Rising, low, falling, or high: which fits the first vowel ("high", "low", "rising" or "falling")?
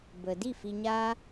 low